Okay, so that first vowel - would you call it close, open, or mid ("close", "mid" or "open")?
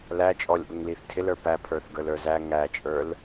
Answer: open